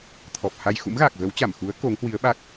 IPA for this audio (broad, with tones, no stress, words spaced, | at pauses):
t̪ʰɔ˨˩p̚ha˧j xṵ˧˥mɣaː˨˩k̚ɣə˨˦wt͡ɕa˧˩m xu˨˦ə̯ ko˨˦ŋhwi˨˦ə̯ɓa˦˥k̚